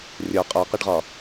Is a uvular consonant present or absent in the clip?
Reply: present